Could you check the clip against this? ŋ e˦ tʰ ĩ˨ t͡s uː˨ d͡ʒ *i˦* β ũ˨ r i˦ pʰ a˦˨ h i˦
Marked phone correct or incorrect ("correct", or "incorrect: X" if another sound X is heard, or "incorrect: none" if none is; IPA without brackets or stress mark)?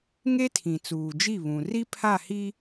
incorrect: i˦˨